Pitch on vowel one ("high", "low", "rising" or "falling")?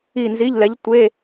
falling